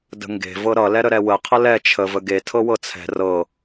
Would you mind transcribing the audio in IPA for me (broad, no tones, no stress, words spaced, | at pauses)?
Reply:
də̤ŋɡe̤ vɤɾʌ lɛɾəɾɛwə qʰəlɛ t͡ʃʰə vəɡe tʰɤwɤt͡sʰɛ̤ rɤ